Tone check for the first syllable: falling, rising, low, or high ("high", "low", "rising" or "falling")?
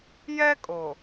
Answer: high